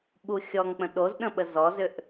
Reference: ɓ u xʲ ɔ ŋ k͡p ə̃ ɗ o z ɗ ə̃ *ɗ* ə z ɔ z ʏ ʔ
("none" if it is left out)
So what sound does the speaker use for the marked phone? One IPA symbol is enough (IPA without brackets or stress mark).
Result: ɓ